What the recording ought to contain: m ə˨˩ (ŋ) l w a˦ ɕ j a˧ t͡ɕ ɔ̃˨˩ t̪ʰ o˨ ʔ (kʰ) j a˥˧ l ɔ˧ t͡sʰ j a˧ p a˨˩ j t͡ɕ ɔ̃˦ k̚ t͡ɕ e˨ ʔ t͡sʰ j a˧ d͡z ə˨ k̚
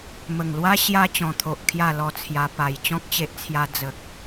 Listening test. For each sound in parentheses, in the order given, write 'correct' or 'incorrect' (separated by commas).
correct, correct